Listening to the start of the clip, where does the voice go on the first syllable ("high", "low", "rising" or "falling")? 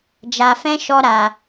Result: low